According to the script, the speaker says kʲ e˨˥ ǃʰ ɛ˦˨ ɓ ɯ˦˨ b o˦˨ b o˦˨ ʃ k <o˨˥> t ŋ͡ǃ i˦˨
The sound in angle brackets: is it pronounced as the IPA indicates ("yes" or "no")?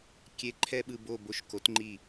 yes